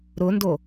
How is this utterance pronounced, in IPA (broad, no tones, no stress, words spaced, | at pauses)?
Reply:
ɾʊndo